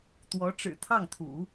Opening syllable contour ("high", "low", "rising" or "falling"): rising